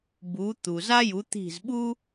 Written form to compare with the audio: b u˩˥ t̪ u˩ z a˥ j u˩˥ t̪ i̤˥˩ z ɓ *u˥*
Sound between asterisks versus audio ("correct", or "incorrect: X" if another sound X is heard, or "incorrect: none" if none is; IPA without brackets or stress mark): correct